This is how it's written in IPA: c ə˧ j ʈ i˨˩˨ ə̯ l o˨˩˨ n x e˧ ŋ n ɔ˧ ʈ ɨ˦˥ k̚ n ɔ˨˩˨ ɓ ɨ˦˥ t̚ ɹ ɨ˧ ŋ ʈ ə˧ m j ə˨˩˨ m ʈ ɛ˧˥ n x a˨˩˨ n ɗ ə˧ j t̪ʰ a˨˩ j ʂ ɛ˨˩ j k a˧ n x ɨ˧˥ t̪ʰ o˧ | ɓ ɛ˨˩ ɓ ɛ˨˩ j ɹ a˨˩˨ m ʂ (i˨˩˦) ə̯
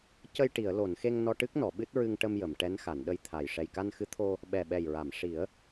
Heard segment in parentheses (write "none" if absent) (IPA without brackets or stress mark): i˨˩˦